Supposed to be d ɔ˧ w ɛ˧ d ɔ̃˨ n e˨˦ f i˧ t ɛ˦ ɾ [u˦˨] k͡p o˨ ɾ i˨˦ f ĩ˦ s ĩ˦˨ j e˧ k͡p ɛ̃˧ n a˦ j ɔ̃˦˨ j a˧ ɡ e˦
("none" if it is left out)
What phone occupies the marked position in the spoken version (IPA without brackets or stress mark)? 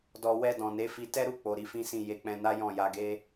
u˦˨